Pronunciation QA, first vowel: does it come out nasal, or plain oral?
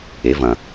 oral